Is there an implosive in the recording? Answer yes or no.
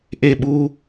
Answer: yes